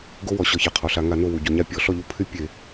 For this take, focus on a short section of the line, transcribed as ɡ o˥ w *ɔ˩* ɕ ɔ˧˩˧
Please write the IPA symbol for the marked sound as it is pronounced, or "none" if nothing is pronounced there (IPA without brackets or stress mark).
ɔ˩